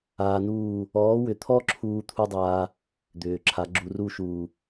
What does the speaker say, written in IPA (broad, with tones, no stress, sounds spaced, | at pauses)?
aː˧ n uː˦˨ | ɔː˨˦ w ʏ˨ t̪ʰ ɔ˦ ǁʰ uː˦ t̪ʰ u˦ dˤ aː˧ | d̪ ʏː˨ ǁʰ a˨˦ ɡ͡ǁ u˧ r u˦ ʃ uː˨